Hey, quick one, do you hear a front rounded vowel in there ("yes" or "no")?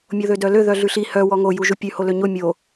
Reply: yes